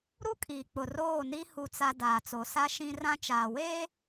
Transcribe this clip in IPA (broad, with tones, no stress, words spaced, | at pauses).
ɾu˦kʼiː˨ k͡pʊ˨roː˦˨ni˦ hu˦t͡sa˦ daː˨t͡so˨sa˦ ʃĩ˦rã˦ t͡ʃaː˨weː˦